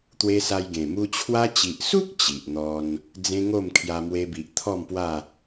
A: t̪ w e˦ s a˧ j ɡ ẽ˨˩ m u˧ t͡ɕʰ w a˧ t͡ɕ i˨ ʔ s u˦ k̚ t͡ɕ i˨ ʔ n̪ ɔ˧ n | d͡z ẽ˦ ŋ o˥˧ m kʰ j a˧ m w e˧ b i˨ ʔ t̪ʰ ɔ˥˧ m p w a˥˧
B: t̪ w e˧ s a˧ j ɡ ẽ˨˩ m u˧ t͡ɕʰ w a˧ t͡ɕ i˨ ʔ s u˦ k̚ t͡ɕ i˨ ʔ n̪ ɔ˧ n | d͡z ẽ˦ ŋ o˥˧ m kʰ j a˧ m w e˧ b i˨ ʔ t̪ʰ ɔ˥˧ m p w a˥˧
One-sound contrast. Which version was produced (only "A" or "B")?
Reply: B